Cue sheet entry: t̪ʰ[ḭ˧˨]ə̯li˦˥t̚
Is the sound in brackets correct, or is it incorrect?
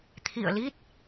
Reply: correct